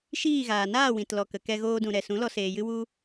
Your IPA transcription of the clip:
ʃ iː˦˨ ɣ aː˨ n aː˦˨ w ĩ˨ t l ɔ˨ k ə˨ k ɛ˧ ɣ oː˧ d ũ˨ ɾ ɛ˨ s ũ˨˦ l ɔ˧ s eː˨ j ɨ˧ w u˧

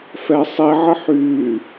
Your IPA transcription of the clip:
f ɛ sˤ i ʕ ə ħ yː

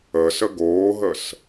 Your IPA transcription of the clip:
əː s ə ɡ oː ɦ ə s

